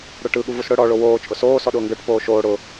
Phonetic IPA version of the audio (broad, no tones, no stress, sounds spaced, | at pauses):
ɽ ə˞ ʈ ɯ ɠ u v u s ɽ ʊ ɽ ɔ ɭ o w oː t͡ʃʼ ʊ s oː s ɔ ɗ ʊː ŋ ɡ ə˞ ʈ p oː ʃ oː ɽ ʊ